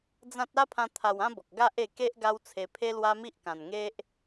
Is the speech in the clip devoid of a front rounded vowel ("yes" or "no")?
yes